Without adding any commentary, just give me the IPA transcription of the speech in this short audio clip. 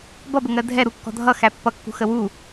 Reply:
b ʌ b ə ŋ ɜ dʱ ɛ ɾ u kː ɔ̤ dʱ ʌ x æ pː ʌ kː ṳ x ə w u

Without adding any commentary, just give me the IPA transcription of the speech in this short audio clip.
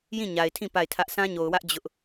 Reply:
j ĩ˦˨ ɲ a˨ ɪ̯ tʰ ĩ˦˨ p a˦˨ ɪ̯ tʰ ä˦ ʔ s ã˦ ɲ o˨ ʊ̯ w ä˦ ʔ d͡ʑ ʊ˦ ʔ

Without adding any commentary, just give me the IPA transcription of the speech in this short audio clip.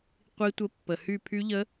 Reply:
qʷ i˦˥ tʷ ə˦˥ pː ə˨˩ h y˦˨ pʰ y˦˥ ʎ ə˦˥

